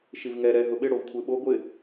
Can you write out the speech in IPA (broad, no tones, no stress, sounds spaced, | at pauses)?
ʃ i v ŋ ɛ ɾ ɛ ɦ ʊ ɓ ɪ ɽ o v kʷʰ e ɓ o ɡʷ ɪ